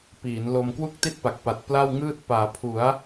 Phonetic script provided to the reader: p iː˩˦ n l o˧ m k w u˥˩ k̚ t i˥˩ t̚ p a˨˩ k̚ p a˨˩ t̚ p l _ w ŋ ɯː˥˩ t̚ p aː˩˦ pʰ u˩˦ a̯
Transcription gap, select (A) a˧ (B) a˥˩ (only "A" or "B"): B